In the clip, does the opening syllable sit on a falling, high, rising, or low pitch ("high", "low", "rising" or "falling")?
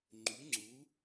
rising